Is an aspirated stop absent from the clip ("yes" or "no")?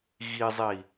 yes